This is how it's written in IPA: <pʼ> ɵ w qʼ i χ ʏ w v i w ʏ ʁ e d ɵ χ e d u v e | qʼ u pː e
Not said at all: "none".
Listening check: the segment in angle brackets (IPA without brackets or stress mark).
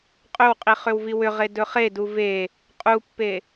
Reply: qʼ